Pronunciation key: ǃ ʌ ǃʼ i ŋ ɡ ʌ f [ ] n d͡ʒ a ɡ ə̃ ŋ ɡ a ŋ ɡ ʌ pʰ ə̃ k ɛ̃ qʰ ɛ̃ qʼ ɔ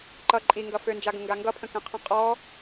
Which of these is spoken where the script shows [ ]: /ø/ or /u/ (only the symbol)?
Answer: ø